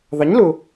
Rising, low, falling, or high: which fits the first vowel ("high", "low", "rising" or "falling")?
rising